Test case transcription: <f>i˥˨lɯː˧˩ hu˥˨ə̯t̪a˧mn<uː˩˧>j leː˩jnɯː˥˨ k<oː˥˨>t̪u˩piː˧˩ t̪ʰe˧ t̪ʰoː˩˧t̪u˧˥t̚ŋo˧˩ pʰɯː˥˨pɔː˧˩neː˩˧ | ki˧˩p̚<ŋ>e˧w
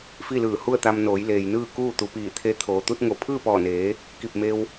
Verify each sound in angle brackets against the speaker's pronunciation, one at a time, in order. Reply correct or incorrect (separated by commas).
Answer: correct, incorrect, incorrect, incorrect